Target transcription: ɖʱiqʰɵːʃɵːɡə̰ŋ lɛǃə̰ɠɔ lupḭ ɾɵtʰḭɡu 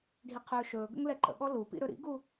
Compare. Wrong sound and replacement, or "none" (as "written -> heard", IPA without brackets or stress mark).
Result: tʰ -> ɾ